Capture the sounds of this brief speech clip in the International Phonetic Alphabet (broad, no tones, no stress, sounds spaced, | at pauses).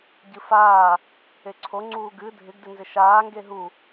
ɟ ɨ f aː | e ǀʰ o ŋ͡ǀ uː ɡ ɨ dʱ ɪ ɡ d ɪ n z ɪ ʃ aː ŋ ɡ e ɦ u